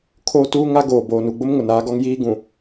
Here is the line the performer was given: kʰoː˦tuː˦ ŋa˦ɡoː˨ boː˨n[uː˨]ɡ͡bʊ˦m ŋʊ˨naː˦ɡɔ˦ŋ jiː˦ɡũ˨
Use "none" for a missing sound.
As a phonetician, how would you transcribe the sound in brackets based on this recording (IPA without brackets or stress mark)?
u˨